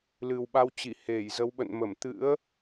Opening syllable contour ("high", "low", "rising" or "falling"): low